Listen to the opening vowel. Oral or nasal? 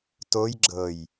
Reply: oral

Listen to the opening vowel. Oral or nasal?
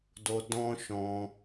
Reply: oral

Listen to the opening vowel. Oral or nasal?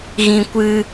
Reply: nasal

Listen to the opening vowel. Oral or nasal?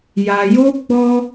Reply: oral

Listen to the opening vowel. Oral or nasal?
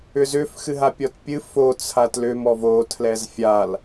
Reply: oral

